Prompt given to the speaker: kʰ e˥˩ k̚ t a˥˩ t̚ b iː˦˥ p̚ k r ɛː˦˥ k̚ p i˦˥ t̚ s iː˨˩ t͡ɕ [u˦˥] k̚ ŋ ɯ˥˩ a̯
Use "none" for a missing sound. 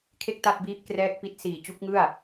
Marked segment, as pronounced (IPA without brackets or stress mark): u˦˥